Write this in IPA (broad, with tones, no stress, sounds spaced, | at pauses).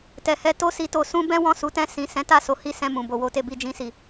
t ɛ˨ h ɛ˧ t o˦ s i˧ t o˧ s ũ˦ b ɛ̃˦ w ɔ̃˦˨ s u˨˦ t ɛ̃˧ s ĩ˨ s ɛ̃˨˦ t a˦˨ s o˨˦ h i˦˨ s ɛ̃˧ m ũ˨ b o˨ w o˧ t e˧ b i˧ d͡ʒ ĩ˧ s i˨